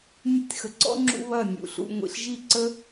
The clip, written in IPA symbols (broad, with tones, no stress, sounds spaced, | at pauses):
nʲ u˧ tʲ x ə˨ ǀ ɔ̰˦ ŋ͡ǁ ṵ˦ β ɐ˦˨ nʲ ṵ˨ ɬ ṵ˧ ŋʷ ḭ˨ ɬ ʒ i˦˨ ǀ ə˦